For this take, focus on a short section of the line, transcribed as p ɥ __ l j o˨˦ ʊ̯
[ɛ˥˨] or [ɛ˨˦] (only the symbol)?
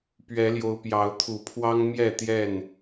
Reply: ɛ˨˦